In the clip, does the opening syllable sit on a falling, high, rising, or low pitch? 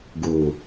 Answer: low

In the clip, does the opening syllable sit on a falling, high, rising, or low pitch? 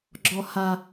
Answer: low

